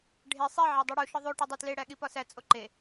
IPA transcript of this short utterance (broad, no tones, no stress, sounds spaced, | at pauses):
ɖʱ e sˤ e ʕ æ dˤ i ɽ u ʃ ɒ ðˤ o ʈ ɒ dˤ o t l e ɽ æ ɠ i p ɒ s æ t͡sʼ o ǃ e